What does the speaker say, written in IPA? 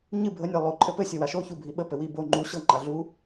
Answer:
ɲ ɨ bʱ ə nʲ a lˠ o ǃʼ ɘ p ɘ sʲ ə w a ʃ o ç u bʱ i ɓ ə p ɘ w i b o ŋ͡ǃ u ɕ ɤ ŋ͡ǃ a ɮ u

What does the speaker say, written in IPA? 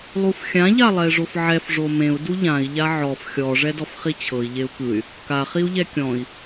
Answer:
lˠ u f xʲ ã ʎ a lˠ ɛ i̯ ʐ o f ʕ ɛ f ʐ o m ẽ u̯ d u ʎ ã i̯ ʎ a ʕ ɔ f xʲ ɔ ʐ ɛ d ɔ f χ i t͡ɕʰ ɤ i̯ ʎ e u̯ k ɯ y̯ | k a χ i u̯ ʎ ɛ kʲ ɔ̃ i̯

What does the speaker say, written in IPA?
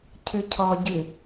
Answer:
cʰ ɨ cʰ ɔ ɟ ɨ

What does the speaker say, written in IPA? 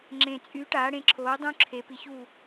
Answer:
ŋ͡ǁ ẽ˨˩ t͡sʼ y˨˥ ʈ aː˨˥ ɽ ẽ˨˥ ǁʰ oː˨˥ dˤ ũ˦˥ ǁʰ e˨˥ p i˨˥ ç u˥˨

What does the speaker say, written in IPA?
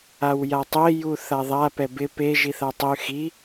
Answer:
a w j a tˤ e j u θ a ðˤ a p ɛ b ɪ p e ʒ i θ a tˤ ʊ y̯ x i

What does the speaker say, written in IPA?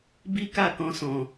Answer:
b i˦ k a˦˨ k ɔ̃˧ s ɔ̃˨

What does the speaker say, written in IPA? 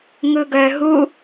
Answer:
ŋ ɯ ɡ œ ɦ u

